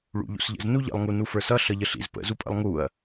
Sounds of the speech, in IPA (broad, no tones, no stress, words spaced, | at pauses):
ɭṵʎṵsʎə̰z nuʎə̰lˠ ŋunufə˞sʌ ɬʌʎəɬḭz pə̰ zupʼə̰lˠŋuɐ̯